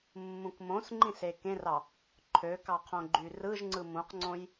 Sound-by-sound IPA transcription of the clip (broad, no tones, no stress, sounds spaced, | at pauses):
mː ũ k m õ s ŋ͡ǃ ĩ s e k ẽ r ɑ | ǃʰ ø k ɑ qʰ õ ɡ͡ǃ y r ɯ ʒ ŋ͡ǀ ɯ m ũ q ŋ͡ǀ õ j